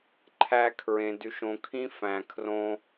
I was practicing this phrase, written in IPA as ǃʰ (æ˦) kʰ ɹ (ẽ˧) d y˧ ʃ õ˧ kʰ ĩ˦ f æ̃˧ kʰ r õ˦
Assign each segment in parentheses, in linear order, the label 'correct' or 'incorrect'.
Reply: correct, correct

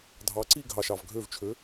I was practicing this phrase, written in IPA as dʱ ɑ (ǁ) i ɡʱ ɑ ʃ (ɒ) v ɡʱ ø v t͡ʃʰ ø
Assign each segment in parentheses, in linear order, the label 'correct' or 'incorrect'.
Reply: incorrect, incorrect

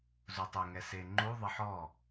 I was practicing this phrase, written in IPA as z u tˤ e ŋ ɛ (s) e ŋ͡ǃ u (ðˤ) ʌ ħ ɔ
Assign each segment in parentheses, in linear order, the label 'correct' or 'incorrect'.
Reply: correct, correct

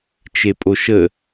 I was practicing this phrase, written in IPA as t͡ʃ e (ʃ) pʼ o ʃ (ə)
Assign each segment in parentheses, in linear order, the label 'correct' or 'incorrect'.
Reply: incorrect, correct

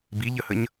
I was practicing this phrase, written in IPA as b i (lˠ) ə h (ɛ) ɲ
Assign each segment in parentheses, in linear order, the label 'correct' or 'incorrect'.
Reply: incorrect, incorrect

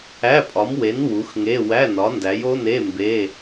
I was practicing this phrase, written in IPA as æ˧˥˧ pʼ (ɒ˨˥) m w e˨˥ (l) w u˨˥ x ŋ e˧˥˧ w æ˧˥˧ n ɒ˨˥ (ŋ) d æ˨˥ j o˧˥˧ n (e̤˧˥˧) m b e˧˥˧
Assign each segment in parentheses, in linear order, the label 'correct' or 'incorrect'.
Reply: correct, incorrect, incorrect, incorrect

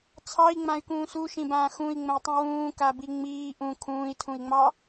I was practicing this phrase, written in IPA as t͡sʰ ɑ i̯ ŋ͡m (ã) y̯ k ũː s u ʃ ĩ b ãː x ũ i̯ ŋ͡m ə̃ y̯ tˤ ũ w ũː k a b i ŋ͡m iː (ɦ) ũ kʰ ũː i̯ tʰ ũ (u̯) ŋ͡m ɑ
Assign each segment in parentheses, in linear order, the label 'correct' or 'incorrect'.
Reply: correct, incorrect, incorrect

